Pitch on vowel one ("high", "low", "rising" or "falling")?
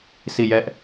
falling